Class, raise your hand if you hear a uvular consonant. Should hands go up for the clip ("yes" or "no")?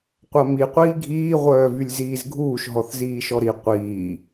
yes